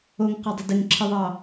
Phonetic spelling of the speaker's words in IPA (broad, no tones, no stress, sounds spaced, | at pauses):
o ŋ q ɒ dˤ ə d ɪ ŋ ǁʰ ɨ ðˤ ɑ